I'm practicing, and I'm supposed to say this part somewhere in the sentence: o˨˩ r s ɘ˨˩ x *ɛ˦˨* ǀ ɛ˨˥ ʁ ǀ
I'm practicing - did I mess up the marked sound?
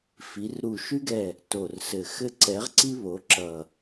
yes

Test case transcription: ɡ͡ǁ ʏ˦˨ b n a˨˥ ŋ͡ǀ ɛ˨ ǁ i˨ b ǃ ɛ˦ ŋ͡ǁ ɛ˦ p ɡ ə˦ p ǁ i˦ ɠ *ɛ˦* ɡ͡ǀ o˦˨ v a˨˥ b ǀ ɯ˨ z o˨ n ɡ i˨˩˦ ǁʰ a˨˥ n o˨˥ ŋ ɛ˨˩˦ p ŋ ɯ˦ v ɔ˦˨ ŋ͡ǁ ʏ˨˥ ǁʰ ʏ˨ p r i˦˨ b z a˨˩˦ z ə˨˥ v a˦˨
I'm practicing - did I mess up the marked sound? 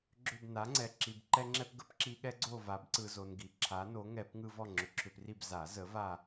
no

